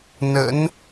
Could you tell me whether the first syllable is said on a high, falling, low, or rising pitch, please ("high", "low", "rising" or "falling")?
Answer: rising